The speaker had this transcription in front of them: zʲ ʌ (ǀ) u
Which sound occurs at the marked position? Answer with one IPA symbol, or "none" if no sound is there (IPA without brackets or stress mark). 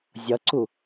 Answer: ǀ